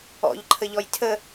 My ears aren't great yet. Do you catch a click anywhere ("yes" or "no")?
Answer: yes